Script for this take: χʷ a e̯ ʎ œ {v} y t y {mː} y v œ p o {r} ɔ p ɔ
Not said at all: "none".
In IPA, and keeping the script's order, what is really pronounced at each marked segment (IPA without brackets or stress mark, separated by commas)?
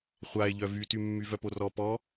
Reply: v, mː, r